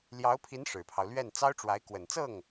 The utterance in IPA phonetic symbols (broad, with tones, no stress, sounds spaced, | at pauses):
l j ɑ˧˥ ʊ̯ pʰ i˧˥ n ʂ ɻ̩˨˩ pʰ ɑ˦ ʊ̯ l ɥ ɛ˥˩ n t͡s ɑ˥ ʊ̯ ʈ͡ʂ w a˧˥ ɪ̯ k w ə˨˩ n t͡s ɤ˥˩ ŋ